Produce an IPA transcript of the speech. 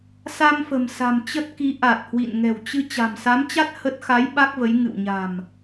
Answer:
sa˧mfə̤˨˩msa̤˨˩m t͡ɕə˦˥t̚ki˨˦ ʔa˨˩t̚hwḭ˧˨n ŋɛ̤˨˩wt͡ɕɨ˧ t͡ɕa̤˨˩msa˨˦mt͡ɕa˦˥t̚ hə˦˥t̚ xa˨˦j ɓa˦˥k̚və˨˦j ŋɨ̰˧˨w ɲa̤˨˩m

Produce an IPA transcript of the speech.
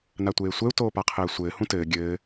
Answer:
natʷeːsʷɛu̯ toːpaqʰɘːsʷɘː hũtɘː ɡʲɘː

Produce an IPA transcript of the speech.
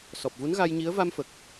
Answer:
sɔ˨˩p̚vu˧˥nɣa˧jɲi˧˥ə̯ va˧mfə˨˩k̚

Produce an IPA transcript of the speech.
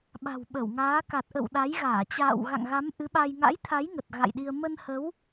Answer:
ɓa̤˨˩w ɓə˧˩wŋaː˨˦ ka˨˩t̚ʔə̰˧˨w ɗa˨˦jɣaː˧˩ t͡ɕa̰ː˧˨wɣa̰˧˨ŋɣa˨˦m ʔɨ˨˦ɓa˧j ŋa̰˧˥jt̪ʰa˨˦j ŋə˨˩t̚ɣa̰˧˨jɗi˧ə̯ mə˧nhə˨˦w

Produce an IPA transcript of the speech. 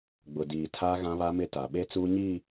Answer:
ɡ͡bʊ˨diː˨ tʰaː˦ɣã˦βa˦mɪ˦ ta˨ ɓe˦ t͡suː˦ɲi˦˨

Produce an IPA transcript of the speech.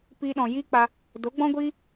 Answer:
piː˧ɗɔ̃˨jiː˦k͡pa˧ | do˨˦ɡ͡bɔ̃˦ɡʷiː˦

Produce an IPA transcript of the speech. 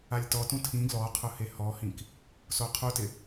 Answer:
alʲtɔtũ tʰĩ ɡlɔqʰʊ hehɔhĩk | soqʰutɪ

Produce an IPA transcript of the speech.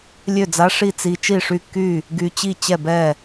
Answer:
lʲø˥˩d͡za˧˥ ʂi˥˩t͡si˧ t͡ʃi˥˩ʂy˥˩kːy˥˩ | ɡy˧t͡ɕi˥˩t͡ɕɛ˥˩bɛ˥˩

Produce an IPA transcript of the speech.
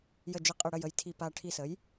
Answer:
jə˦˨d͡ʒɪ˦˨qʼɪ˦˨ ɽə˦˨jə˦˨jtʰi˦˨ pa˦˨ ʈʰi˦˨sə˩˥j

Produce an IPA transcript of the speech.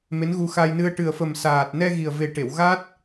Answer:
me˧˥nɣu˧ xa˧jnɨ˧ə̯ ʈɨ˨˩ə̯fə˨˩msaː˨˩t̚nɛ˧ ɣi˨˩ə̯ve˨˩ʈe˨˩˨w ɣa˦˥t̚

